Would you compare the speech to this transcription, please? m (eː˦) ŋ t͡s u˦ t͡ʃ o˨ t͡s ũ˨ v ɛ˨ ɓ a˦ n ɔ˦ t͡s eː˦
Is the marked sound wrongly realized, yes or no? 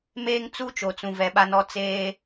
no